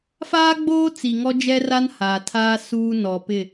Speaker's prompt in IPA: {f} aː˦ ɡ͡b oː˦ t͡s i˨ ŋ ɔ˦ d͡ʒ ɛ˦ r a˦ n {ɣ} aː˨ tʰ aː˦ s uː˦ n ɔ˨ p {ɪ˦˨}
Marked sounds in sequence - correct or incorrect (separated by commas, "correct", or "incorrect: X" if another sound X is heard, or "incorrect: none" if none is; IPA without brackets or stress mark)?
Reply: correct, incorrect: h, correct